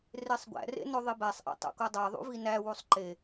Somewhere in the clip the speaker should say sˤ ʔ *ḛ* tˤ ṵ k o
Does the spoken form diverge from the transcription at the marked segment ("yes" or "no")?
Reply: no